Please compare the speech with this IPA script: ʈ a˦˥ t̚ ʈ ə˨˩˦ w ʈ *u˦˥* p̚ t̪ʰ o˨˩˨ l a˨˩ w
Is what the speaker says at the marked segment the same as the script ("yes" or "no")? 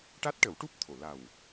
yes